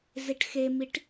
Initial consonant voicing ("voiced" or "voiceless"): voiced